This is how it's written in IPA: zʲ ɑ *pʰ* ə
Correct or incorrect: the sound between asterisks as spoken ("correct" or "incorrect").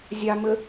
incorrect